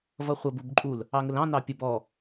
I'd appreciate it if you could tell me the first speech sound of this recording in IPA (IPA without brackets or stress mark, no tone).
v